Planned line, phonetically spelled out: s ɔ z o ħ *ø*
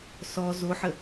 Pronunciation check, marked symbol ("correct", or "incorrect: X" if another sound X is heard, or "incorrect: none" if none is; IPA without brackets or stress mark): incorrect: ə